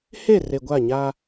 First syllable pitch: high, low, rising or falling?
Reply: falling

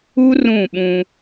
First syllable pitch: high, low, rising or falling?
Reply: high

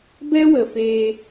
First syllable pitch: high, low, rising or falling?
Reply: high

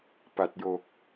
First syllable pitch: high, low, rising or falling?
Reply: low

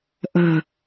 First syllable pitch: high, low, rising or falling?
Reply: low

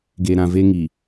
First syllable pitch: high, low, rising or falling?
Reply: low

